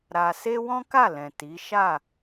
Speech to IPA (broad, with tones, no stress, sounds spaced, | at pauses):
ɾ a˧ s e˦ w ɔ̃˦ k a˦˨ l ɛ̃˨ t i˨˦ ʃ a˦˨